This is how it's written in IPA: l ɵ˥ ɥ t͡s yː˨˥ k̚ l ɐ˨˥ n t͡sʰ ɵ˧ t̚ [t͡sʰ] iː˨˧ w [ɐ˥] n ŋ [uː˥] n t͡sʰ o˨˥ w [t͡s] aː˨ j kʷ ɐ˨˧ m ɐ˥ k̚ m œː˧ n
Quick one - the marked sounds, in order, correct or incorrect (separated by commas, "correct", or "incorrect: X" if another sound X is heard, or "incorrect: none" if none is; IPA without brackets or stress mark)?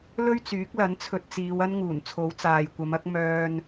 incorrect: t͡s, correct, incorrect: uː˨˩, correct